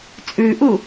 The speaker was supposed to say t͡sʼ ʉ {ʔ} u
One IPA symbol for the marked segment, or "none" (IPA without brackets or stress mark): ʔ